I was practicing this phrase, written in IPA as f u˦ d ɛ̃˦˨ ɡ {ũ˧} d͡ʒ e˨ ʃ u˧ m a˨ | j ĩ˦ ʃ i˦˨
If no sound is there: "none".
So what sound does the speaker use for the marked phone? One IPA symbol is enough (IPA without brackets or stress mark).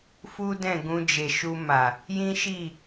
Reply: ũ˧